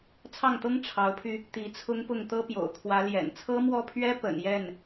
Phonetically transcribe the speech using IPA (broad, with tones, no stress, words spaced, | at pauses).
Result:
t͡sʰɑ˥˩ŋt̪ɤ˥ŋ ʈ͡ʂʰɑ˧˥ʊ̯pʰy˧ | t̪i˧˥t͡sʰʊ˥ŋpʊ˥˩ŋ t̪ɤ˥pjo̰˨˩ʊ̯kʰwä˧˥ ljɛ̰˨˩nt͡sʰɤ˥mwɔ˥˩pʰɥɛ˥ pə̰˨˩n jɛ˥˩n